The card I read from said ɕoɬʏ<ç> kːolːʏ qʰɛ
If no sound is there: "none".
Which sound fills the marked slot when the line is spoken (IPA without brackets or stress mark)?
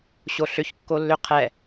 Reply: ç